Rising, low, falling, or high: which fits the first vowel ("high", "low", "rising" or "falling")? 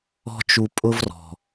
high